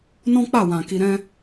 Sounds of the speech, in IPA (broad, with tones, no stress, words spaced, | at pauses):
nɔ̃˦k͡pa˦˨wã˨ ki˧ɾɛ̃˦